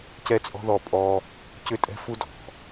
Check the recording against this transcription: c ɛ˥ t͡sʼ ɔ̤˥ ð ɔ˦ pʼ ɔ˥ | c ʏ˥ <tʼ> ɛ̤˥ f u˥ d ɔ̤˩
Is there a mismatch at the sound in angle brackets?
no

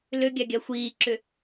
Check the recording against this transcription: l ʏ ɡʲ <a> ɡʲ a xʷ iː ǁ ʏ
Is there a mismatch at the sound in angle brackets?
no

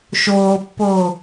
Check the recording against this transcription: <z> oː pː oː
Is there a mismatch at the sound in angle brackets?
yes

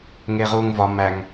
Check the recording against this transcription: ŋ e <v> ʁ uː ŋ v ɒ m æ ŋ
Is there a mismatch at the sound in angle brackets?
yes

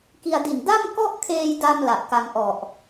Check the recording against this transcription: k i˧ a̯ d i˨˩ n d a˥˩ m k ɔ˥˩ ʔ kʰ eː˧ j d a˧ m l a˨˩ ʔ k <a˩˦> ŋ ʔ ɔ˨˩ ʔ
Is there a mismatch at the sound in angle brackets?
yes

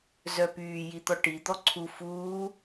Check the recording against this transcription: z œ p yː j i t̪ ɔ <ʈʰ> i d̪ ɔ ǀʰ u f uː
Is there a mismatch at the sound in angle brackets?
yes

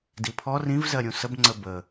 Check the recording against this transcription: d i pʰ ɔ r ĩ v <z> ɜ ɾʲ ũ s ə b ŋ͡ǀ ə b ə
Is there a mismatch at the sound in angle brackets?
no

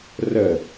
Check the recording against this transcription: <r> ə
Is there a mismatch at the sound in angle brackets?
no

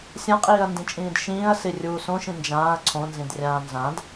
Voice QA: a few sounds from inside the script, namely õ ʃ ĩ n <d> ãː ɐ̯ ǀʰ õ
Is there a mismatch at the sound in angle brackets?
yes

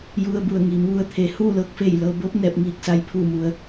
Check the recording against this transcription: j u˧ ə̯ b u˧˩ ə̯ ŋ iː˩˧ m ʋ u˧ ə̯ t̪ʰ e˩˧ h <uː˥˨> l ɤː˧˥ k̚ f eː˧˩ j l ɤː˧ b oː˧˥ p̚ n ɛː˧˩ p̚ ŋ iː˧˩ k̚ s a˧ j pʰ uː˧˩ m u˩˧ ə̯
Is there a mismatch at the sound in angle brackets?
no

